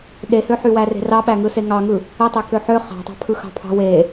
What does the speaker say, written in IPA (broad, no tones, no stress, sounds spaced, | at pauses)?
ɗ e h ø ħ y w æ r e̤ r ɑ ɓ æ ŋ ɯ s e ŋ ɑ ŋ ɯ | ɯ tˤ ø k ø ħ ø χ ɑ̤ tˤ ɑ̤ pʰ ɯ x ɑ̤ pʰ ɑ̤ w e